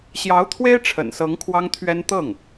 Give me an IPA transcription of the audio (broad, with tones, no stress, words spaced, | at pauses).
ɕjɑ˧˥ʊ̯t̪ʰwe˥ɪ̯ ʈ͡ʂʰə̰˨˩nsɤ˧˥ŋ kʰwɑ˥ŋt̪ʰɥɛ˥n t̪ɤ˥˩ŋ